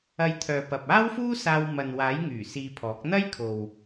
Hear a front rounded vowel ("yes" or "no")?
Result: yes